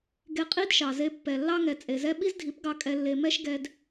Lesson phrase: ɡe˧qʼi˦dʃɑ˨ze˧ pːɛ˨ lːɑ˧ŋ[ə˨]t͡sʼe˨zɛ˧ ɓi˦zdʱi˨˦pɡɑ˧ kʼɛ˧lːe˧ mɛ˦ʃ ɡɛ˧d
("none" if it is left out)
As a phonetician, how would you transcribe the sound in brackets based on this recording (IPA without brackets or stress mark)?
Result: ɛ˨